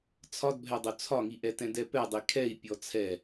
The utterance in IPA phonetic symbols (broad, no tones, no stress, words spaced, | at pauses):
t͡sʰɒdbʱɛdˤo t͡sʰɒŋiʔɛtɛ̃ dɛpɛdˤi kʰɛi̯ pʲɔt͡sʰɛ